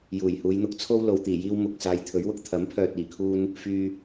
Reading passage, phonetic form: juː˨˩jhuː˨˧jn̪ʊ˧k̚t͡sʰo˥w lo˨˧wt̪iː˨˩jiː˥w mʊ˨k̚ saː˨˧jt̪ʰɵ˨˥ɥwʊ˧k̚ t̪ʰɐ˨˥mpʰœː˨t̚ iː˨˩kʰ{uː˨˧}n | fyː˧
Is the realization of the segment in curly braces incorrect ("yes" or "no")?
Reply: yes